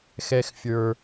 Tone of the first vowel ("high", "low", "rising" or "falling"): low